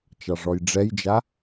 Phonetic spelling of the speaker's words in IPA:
t͡ʃ ɑ ʐ ɔ j ɖ͡ʐ ɛ j d͡ʒ a

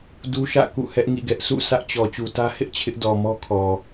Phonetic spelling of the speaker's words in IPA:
d u˦ ʃ ä̰˦˨ k ṵ˦˨ h ɛ˦ ʔ ŋ ḭ˦˨ ɡ ɛ˦ ʔ s ṵ˦˨ s ä˦ ʔ t͡ɕ ɔ˨ t͡ɕ u˨ t ä˦ h ɪ˦ ʔ t͡ɕʰ ɪ˦ ʔ d ɔ˨ m ɔ˦ kʰ ɔ˨

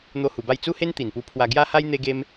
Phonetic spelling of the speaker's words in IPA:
n̪ o˦ h u˧ b a˥˧ j t͡s u˦ h e˦ n t̪ i˨˩ n p u˧ pʰ w a˧ ɡ j a˦ h a˦ j n̪ e˦ ɡ e˦ m

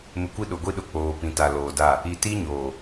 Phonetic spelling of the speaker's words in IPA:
m ɪ˨ kʷ i˦ ɗ ʊ˨ ɡʷ i˦ ɗ ʊ˨ k͡p oː˨ p ĩ˨ t a˨ l oː˨ d a˦˨ | i˨ t i˦ ɲ oː˨

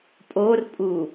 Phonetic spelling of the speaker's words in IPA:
pʼ o r pʼ u

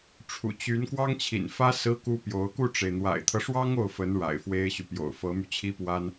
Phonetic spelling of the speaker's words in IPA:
ʈ͡ʂʰ ṵ˨˩ t͡ɕ y˧˥ n k w ɑ˥ ŋ t͡ɕʰ ḭ˨˩ n f ä˥ s ɹ̩˥ k u˥ p j o˧˥ ʊ̯ k u˥˩ ʈ͡ʂ e˩ ɪ̯ n̪ w a̰˨˩ ɪ̯ t̪ʰ ɤ˦ ʂ w ɑ˥ ŋ o˥˩ ʊ̯ f ə˧˥ n ɻ a̰˨˩ ɪ̯ f w e˥ ɪ̯ ɕ y˨ p j o̰˨˩ ʊ̯ f ɤ˧˥ m y˧ t͡ɕʰ i˥ p w a˥ n

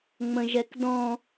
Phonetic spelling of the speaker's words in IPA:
ŋ͡m ə̃ ʒ ɛ k d ɔ̃

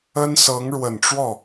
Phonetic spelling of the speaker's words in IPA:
ə˥ n s ɤ˧˥ ŋ ɻ w ə˨˩ n ʈ͡ʂ w ɔ˥˩

